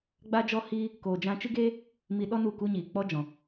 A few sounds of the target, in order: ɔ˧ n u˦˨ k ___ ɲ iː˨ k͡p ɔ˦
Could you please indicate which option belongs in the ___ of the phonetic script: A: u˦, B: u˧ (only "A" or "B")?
A